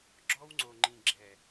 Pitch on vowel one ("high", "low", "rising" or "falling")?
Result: high